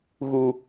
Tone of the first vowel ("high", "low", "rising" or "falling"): low